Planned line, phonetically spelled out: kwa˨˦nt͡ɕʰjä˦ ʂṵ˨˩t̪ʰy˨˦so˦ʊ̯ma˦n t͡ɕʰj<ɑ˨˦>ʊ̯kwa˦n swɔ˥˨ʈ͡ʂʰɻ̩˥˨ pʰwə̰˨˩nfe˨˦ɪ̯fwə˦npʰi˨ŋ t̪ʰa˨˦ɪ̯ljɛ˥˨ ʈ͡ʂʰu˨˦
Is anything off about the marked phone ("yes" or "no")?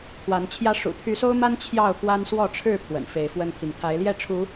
yes